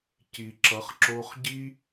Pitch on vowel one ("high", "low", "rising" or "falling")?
low